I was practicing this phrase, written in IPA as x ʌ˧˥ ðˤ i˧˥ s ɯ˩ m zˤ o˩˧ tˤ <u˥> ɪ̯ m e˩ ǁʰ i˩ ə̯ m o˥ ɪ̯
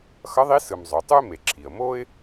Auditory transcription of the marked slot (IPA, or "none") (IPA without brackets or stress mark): u˥